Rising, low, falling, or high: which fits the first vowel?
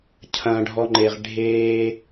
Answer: low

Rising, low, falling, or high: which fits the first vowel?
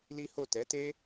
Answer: high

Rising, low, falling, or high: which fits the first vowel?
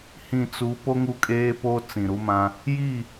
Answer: low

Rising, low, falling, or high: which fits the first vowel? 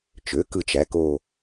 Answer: rising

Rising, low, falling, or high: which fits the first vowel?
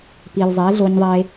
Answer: low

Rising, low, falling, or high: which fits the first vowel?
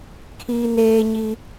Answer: high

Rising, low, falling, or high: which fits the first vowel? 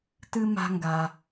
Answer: high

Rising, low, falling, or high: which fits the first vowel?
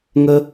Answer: high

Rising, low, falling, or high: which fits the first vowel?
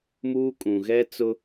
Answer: high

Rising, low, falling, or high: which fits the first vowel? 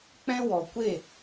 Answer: high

